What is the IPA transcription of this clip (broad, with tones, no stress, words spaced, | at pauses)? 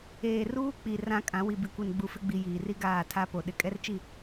eː˨ruː˦k͡pi˨ rã˦kʼã˨˦ wi˨bi˨kʷi˨n ɡ͡bu˨fɪ˦ɡ͡bi˨ jiː˨ri˦ ɡaː˦˨tʰa˦po˨ ɗɪ˨kʼɛ˦rt͡ʃi˦˨